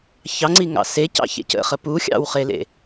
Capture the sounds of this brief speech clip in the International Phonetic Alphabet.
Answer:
çɑŋ͡ǀi ŋɑ̰secɑ̰ çḛcə̰ χəpu xʲɑ̰wχelḛ

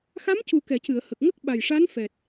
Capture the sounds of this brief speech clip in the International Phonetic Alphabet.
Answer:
xa˧˥mcu˨˩kɛ˨˩˨ cɨ˨˩˨ə̯hə˨˩k̚ŋə˦˥k̚ ɓa˨˩jʂa˧˥n fɛ˨˩t̚

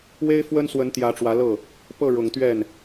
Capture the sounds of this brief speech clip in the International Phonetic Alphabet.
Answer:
we˥ɪ̯fwə˥nswə˧˥n t̪jä˧˥ʈ͡ʂwä˧˥lɤ˥˩ | pɤ˥˩ɻʊ˨˩ŋt̪ɥɛ˥˩n

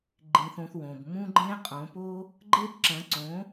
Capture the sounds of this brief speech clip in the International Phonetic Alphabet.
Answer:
ɡ͡ǃĩ˧θõ˧θwõ˨b mũ˦ɡ͡ǃẽ˦ qʼõ˨˦po˦ | ɡ͡ǃe˦bǁɐ̃˨˦ǀõ˨˦

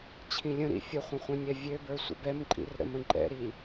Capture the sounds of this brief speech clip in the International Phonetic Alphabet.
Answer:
t͡ɕʰĩlʲə̃ɾḭ fʲəχʷə̃ χʷĩnʲɛvʲøbə˞ sʷə̰bɛmǃʼḭr ɾə̰mə̃ǃʼɛ̰ɾi

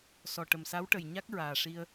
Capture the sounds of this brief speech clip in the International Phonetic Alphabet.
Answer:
sɔ˨˩ ʈə˨˩msa˧˥wʈə˨˩j ɲa˦˥k̚ɹaː˨˩ʂi˧ə̯

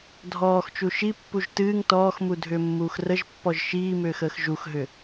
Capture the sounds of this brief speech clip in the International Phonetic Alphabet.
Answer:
dʱɔːxt͡ʃu ʃipːuʒ tɨːŋ tɔːxmudʱʏːmːuːx rəʒpːɔʒ ʃiːmʏːxəːx ʒuxɦʏ

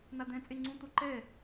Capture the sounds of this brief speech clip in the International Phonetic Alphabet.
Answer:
nad̪ɛ̃ t͡sʼeŋ͡ǀũ t̪oǃɛ

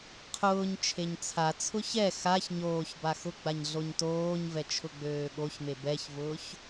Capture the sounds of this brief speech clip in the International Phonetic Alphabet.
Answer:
qʰʊːɲ t͡ʃʰeɲt͡sʰat͡sʰʊ çɛ xaç ɲoːçba xʊɡ͡baɲ ɮoɲtoːɲvɛ t͡ʃʰʊɡ͡bøːɠoçme bɛçvʊːç

